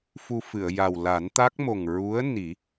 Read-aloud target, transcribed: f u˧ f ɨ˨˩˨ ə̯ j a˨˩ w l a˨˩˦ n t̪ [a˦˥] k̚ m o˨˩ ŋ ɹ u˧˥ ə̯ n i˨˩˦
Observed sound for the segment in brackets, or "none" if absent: a˦˥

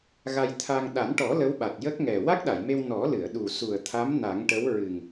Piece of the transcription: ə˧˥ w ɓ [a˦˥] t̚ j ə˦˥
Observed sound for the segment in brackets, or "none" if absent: a˨˩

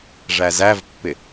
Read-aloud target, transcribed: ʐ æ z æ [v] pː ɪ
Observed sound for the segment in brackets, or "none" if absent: v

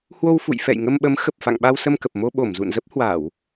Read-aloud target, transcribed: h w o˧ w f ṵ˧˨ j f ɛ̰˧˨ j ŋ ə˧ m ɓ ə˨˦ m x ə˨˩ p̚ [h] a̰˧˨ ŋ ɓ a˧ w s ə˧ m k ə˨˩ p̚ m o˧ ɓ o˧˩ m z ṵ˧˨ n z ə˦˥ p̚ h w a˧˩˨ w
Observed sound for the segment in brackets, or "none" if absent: f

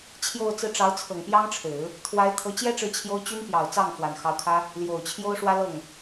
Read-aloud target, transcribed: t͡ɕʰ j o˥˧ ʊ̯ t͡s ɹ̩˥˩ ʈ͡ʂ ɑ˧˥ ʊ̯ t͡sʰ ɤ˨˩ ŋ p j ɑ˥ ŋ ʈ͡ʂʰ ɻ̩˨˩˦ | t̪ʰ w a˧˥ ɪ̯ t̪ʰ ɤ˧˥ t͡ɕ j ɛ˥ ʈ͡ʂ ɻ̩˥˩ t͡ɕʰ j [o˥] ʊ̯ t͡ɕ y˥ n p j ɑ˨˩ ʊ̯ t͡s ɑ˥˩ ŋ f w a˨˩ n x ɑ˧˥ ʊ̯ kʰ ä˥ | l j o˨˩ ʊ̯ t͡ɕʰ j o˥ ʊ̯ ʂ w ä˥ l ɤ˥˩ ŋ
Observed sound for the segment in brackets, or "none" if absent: o˥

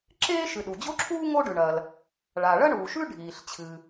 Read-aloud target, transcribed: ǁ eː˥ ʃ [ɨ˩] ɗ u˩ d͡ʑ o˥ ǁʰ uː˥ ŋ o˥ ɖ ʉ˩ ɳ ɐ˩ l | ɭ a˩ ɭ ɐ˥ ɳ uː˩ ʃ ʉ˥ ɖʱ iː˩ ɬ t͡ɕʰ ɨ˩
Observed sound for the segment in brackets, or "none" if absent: ɨ˩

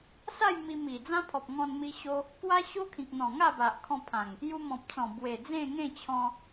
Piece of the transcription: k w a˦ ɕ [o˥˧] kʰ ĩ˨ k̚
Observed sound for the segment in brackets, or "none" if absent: o˦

